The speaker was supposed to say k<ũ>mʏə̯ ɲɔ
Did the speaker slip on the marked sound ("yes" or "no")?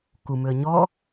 yes